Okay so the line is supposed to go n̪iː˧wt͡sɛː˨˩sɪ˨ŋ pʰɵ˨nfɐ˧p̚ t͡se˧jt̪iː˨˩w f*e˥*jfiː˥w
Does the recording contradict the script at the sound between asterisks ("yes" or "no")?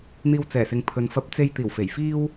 yes